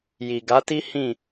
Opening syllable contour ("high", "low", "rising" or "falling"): low